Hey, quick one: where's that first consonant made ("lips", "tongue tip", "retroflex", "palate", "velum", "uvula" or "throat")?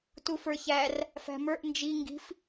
tongue tip